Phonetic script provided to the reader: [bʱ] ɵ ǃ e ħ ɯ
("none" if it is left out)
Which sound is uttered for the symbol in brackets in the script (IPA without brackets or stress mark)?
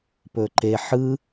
p